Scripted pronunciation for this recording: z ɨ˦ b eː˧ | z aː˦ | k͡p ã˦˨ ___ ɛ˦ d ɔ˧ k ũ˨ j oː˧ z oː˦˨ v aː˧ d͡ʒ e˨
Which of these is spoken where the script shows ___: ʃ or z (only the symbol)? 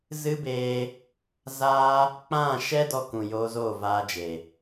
ʃ